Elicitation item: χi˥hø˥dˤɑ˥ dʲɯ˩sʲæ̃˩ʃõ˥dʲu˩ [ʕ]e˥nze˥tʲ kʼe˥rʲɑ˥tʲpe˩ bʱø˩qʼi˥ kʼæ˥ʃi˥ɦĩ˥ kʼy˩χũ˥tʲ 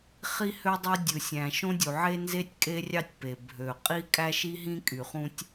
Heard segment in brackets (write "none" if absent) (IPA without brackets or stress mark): ʕ